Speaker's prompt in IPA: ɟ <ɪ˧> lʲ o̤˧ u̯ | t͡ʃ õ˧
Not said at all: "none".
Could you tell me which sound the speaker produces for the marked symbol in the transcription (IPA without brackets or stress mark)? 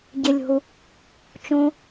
ɪ˧